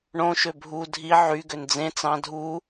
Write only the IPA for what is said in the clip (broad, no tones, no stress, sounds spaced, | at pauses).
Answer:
ɳ õ ʃ ø bʱ u dʱ i ʕ y ɡ ø n d͡z ẽ t͡s ɑ̃ dʱ u